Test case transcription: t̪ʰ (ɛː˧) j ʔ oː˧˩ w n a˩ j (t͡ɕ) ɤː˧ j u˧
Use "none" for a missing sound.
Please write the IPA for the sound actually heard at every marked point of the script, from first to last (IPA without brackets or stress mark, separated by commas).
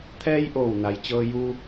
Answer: ɛː˧, t͡ɕ